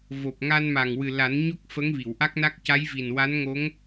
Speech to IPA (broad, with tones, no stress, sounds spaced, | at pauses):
v o˨˩ p̚ ŋ a˧ n m a˨˩ ŋ w ɨ˨˩ l a˨˩˦ n ɲ o˦˥ k̚ f ə˧˥ ŋ v i˨˩˨ w ʔ a˦˥ k̚ n a˦˥ k̚ c a˧˥ j v i˨˩ n w a˧˥ n ŋ o˧˥ ŋ